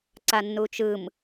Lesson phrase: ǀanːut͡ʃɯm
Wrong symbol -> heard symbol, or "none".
none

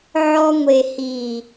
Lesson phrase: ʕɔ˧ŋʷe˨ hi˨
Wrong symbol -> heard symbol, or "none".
none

